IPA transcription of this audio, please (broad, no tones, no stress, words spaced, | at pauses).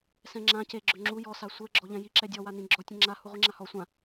sɛ̃ŋ͡ǁã ceɡ͡ǁœ ŋ͡ǁu jɔsa sʷɛ ɡ͡ǁɔʎɛ̃jiǁɛ dʲɔwanĩ ɡ͡ǁɔtʲɛ̃ ŋ͡ǁa huʁʷiŋ͡ǁahɔ sʷã